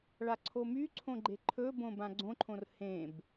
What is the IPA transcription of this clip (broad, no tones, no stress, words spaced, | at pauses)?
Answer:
ɭaǀʰomyǀʰõ ɡ͡ǃeǃʰɵbõ bãɡ͡ǀõǃʰõr hẽb